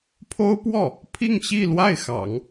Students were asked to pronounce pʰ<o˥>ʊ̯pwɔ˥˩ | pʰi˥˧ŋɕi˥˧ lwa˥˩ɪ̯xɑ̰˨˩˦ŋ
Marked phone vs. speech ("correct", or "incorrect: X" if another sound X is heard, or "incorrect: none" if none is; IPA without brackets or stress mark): correct